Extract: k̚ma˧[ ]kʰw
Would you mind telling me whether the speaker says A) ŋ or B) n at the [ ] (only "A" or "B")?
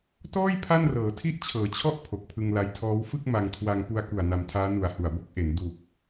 A